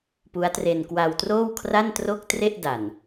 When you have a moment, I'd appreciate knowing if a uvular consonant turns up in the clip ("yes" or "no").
no